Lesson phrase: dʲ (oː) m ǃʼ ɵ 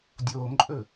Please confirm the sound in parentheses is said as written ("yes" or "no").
yes